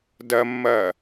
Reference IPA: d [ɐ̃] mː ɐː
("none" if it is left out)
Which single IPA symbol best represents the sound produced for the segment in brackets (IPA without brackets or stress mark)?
ɐ